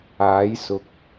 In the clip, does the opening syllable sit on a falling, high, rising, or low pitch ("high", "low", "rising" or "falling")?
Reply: rising